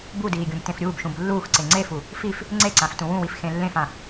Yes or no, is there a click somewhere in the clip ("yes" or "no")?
yes